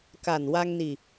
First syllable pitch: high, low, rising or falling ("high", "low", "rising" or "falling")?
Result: low